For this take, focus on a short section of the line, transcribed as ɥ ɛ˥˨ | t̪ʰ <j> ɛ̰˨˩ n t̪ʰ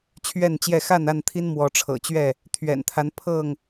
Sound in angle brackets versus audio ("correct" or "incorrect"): incorrect